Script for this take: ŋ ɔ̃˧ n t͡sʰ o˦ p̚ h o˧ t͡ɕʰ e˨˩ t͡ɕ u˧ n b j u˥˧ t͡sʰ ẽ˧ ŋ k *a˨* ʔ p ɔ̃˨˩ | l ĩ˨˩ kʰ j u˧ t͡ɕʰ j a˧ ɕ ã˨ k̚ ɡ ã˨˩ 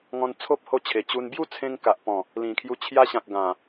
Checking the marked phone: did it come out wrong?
no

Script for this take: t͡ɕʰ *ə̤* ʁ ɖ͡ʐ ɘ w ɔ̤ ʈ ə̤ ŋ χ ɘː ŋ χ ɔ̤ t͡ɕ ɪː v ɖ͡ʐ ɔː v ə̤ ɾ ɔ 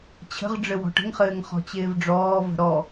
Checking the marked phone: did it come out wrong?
no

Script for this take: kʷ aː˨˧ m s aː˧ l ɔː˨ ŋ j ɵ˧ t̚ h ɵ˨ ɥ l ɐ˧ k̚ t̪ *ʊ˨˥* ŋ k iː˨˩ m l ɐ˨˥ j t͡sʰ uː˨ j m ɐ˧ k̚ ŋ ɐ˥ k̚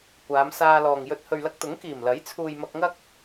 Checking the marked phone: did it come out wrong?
no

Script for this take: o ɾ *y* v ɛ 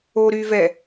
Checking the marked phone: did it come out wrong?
no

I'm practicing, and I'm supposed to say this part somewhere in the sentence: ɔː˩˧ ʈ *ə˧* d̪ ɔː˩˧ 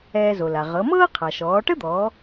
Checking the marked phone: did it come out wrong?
yes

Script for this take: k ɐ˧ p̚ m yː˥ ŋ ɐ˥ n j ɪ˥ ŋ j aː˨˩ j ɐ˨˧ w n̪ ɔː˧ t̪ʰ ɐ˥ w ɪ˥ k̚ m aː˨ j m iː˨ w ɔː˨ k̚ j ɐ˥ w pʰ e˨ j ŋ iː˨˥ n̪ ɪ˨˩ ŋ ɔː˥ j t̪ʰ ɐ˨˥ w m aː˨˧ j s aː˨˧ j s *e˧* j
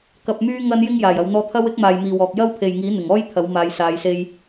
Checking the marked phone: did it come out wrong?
no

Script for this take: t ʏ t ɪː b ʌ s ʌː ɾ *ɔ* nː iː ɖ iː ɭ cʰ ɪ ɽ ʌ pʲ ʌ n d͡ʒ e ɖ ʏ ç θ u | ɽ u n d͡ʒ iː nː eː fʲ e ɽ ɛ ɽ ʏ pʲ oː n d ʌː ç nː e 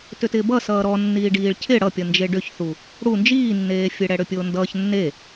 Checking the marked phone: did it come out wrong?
no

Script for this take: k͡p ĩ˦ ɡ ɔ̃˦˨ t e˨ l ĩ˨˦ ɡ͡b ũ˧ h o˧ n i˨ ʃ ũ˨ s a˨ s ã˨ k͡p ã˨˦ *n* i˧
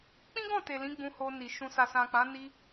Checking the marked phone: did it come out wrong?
no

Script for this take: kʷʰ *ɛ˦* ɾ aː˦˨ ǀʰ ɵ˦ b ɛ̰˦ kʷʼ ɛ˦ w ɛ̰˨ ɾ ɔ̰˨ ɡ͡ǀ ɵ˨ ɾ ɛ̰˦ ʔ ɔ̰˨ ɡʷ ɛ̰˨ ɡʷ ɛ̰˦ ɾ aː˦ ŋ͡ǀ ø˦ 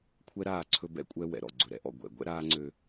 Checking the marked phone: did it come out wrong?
no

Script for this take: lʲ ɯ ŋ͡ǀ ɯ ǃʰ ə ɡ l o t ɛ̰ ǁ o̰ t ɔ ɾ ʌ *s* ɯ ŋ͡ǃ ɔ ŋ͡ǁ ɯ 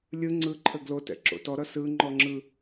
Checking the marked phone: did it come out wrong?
no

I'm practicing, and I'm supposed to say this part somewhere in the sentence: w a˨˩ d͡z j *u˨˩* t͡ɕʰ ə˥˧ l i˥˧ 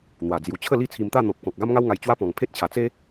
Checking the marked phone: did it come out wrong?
no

